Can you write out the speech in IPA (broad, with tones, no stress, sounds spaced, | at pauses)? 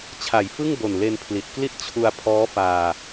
t͡ɕʰ a˨˩ j f ɯ˥˩ ŋ b o˨˩ n l e˧ n pʰ l i˨˩ t̚ k l i˥˩ t̚ t͡ɕʰ u˧ a̯ pʰ ɔː˦˥ f aː˧